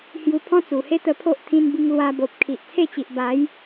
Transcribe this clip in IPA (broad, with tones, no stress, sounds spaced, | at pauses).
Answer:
h j u˧ pʰ ɔ̃˦ t͡s u˨˩ h e˦ t̪ ə˧ pʰ o˦ ʔ t̪ʰ ĩ˧ n b i˧ ŋ l w a˧ b o˨ p̚ kʰ i˨ ʔ t͡sʰ e˥˧ t͡ɕ i˨ ʔ b a˨˦ j